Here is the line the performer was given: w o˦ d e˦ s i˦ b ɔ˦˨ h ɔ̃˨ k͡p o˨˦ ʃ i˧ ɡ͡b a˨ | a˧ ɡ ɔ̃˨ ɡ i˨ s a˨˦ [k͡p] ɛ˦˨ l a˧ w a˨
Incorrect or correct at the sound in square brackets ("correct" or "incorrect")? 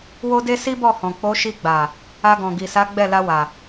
incorrect